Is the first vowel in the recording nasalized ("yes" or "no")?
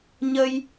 no